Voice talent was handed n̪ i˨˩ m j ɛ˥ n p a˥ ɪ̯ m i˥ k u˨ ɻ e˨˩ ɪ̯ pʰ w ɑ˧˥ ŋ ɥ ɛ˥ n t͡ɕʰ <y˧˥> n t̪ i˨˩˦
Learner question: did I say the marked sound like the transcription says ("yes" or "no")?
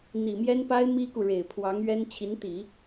no